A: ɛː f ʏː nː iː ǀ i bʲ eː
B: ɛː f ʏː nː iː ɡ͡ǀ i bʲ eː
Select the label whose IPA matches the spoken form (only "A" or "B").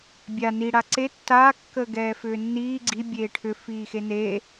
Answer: B